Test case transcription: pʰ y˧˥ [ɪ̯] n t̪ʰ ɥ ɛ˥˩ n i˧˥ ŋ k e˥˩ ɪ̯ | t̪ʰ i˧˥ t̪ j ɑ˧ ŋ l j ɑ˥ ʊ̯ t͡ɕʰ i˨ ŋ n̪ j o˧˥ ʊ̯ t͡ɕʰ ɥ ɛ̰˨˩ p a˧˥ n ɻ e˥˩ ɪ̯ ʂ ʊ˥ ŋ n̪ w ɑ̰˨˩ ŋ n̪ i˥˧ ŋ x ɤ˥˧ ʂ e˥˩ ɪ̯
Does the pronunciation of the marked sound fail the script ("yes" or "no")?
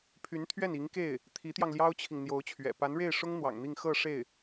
yes